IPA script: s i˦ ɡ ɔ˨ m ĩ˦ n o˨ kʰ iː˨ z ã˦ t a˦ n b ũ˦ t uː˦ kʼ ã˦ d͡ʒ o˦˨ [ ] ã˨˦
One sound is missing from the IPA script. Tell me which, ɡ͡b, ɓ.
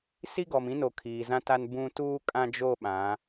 ɓ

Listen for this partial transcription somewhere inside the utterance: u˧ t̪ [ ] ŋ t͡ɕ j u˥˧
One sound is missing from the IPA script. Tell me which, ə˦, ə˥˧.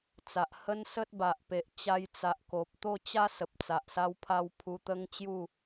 ə˦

